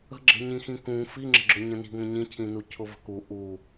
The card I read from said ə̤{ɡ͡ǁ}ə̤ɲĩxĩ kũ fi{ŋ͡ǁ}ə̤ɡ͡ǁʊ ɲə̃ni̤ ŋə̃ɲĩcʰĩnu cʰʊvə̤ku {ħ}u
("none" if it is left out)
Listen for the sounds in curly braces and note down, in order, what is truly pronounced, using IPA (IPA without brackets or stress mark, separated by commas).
ɡ͡ǁ, ŋ͡ǁ, ʔ